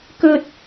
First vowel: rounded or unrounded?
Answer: rounded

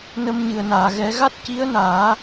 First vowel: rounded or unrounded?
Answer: unrounded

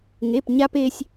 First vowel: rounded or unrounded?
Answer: unrounded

